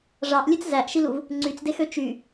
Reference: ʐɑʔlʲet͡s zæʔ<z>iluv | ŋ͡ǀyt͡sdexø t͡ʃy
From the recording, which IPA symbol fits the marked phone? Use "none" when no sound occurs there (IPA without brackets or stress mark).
ʃ